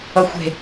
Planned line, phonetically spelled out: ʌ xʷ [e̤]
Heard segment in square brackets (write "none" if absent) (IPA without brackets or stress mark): e̤